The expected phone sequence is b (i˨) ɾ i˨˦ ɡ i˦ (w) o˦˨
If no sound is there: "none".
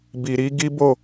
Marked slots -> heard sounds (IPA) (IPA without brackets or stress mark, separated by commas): i˨, b